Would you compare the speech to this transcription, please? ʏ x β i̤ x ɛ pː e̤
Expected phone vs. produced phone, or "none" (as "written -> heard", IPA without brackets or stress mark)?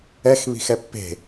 ʏ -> ɛ